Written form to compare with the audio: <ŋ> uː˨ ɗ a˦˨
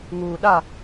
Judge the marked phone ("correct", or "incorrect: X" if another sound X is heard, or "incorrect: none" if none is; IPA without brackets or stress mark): correct